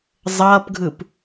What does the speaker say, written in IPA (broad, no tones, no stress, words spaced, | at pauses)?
zˤʌːpɡʱɯp